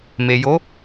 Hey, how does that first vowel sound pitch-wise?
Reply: low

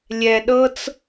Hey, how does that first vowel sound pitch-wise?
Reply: low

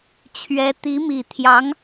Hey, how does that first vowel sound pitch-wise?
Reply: rising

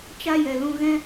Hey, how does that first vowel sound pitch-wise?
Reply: high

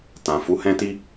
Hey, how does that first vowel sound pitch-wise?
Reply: low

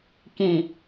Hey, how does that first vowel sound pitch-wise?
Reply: low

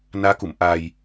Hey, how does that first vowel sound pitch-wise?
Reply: rising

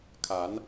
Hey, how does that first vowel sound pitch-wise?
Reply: rising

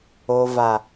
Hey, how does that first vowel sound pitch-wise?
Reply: low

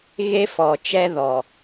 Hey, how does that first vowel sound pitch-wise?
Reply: high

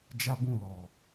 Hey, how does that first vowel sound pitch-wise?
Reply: high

